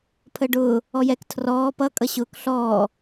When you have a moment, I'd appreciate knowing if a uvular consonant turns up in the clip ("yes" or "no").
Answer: no